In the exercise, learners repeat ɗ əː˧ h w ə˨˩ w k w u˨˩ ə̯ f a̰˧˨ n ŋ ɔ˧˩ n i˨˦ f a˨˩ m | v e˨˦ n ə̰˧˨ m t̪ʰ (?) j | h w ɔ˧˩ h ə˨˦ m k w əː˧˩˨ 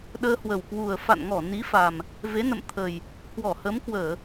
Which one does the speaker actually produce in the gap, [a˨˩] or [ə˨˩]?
ə˨˩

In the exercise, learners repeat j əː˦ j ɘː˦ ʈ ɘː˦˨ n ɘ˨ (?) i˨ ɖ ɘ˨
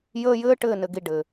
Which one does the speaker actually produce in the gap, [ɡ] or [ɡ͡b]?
ɡ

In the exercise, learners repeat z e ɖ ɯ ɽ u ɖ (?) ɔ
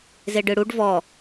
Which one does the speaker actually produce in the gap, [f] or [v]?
v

